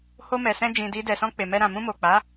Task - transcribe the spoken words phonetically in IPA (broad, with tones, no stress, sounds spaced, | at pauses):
h o˧ m ɛ˨ s ɛ̃˧ d͡ʒ ĩ˨ d i˧ d ɛ˨ s ɔ̃˧ k͡p e˨ m ɛ˧ ɾ ã˨ m ũ˧ m o˨ k͡p a˨˦